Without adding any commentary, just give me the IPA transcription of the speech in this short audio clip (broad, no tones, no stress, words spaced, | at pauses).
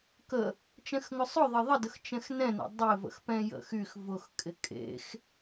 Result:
kə | t͡ʃɛ̃xŋʊsˤʊðˤɪ ðˤədəx t͡ʃɛ̃xnɛ̃nɛ̰ dˤɪ və̰xpɛ̃jə̰xyx vʊxkʼɪ kʼḛx